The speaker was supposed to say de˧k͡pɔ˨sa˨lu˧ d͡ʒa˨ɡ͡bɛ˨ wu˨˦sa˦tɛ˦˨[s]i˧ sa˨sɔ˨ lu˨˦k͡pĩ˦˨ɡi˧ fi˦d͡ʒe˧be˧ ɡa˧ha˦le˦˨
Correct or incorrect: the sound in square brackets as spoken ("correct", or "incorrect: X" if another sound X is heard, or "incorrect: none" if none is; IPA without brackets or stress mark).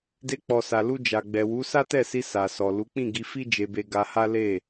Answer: correct